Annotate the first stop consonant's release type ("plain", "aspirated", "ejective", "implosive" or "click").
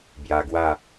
plain